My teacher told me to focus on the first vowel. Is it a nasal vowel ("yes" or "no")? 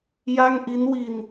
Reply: no